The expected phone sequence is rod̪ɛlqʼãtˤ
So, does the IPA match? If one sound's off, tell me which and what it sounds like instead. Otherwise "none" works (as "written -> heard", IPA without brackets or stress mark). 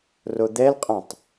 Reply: none